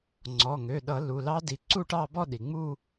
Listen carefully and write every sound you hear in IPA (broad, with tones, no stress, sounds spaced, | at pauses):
ŋ͡ǀ ɔ˩˧˩ ŋ ø˩˧˩ ɗ ʌ˧˩˧ l u˩˧˩ l ɑ˦˥ d i˩˥ ǀ u˥˧ ʈ ɑ˥˧ b ɔ˥˧ ɗ i˩ ŋ͡m u˥˧